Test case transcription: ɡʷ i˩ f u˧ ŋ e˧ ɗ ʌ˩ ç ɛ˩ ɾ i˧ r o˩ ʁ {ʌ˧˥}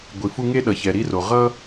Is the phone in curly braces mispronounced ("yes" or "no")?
yes